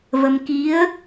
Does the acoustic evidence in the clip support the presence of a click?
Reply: no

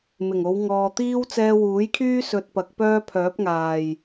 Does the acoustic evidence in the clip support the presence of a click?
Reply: no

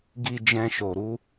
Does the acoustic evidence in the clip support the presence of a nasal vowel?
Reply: yes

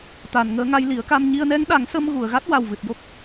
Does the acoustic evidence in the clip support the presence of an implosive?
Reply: yes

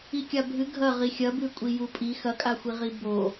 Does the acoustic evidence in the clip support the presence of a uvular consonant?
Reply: yes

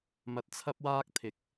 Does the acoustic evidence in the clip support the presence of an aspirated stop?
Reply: yes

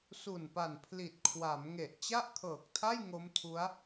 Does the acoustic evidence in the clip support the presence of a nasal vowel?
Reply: no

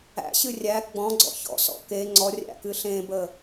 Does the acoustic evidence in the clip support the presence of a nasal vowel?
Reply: yes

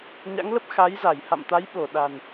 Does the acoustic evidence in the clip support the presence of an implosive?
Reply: yes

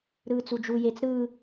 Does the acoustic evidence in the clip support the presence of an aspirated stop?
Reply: no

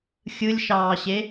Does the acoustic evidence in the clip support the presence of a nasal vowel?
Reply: no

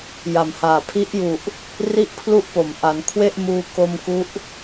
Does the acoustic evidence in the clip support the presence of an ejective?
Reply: no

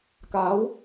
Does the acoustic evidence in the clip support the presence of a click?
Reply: no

